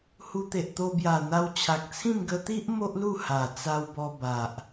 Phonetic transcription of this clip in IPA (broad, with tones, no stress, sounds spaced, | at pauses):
h u˧ t̪ e˨ ʔ t̪ o˧ b j a˨˩ n̪ a˧ w t͡ɕʰ a˨ k̚ t͡sʰ ĩ˥˧ m ɡ ə˧ t̪ i˦ ʔ m o˦ ʔ l u˥˧ h a˨˩ t͡s a˧ w b ɔ˧ b a˨ ʔ